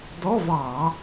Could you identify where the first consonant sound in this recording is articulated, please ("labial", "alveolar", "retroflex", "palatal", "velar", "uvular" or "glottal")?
alveolar